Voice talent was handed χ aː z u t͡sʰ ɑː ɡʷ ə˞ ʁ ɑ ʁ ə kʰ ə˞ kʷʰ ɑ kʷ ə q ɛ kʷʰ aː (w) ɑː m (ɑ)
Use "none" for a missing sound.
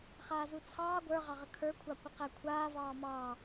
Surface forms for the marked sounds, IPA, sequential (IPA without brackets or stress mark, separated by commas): v, ɑ